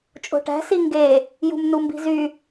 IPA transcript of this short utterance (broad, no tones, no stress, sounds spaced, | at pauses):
t͡ʃʼ o̤ ʈ æ̤ s i ŋ ɡ e | j ṳ m n u m b i̤ z y